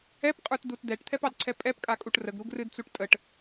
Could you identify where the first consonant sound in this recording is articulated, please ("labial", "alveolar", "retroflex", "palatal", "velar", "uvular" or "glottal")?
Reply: labial